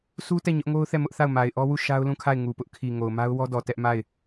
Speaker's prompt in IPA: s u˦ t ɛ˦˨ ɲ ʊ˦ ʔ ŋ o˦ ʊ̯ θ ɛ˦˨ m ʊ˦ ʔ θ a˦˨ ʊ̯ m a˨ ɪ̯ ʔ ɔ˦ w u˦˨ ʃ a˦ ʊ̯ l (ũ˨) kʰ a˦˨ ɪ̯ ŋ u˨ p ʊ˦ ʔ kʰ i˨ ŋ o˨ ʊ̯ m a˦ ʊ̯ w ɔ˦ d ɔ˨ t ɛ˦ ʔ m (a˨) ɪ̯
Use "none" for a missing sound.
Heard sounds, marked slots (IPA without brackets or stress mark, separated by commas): ũ˦˨, a˦˨